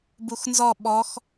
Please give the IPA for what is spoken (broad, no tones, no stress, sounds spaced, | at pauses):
b u x n z ɔ ɓ ɔ x